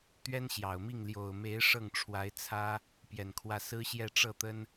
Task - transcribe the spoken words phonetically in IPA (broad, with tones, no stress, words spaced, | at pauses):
t̪ɥɛ˥nɕjɑ˨˩ʊ̯mi˥˩ŋ ljo˨˩ʊ̯me˧˥ɪ̯ ʂɤ˥˩ŋʈ͡ʂʰwa˧˥ɪ̯ t͡sʰä˥ | pjɛ˨˩nkʰwä˥˩ sɹ̩˥ɕjɛ˥˧ ʈ͡ʂɤ˥˩t̪ə˥n